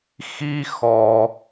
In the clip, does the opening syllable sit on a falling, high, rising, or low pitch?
high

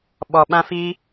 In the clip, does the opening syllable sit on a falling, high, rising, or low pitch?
low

